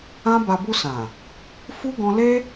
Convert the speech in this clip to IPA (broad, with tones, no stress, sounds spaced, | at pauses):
ã˦ b a˧ b u˧ s ã˨ | f u˦ ɡ ɔ̃˦ l e˦